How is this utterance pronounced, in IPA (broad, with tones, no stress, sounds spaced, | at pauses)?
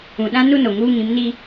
ũ˨ ɗ ã˦ n u˦ n o˨ ŋ uː˦ ŋ ĩ˨˦ m n i˦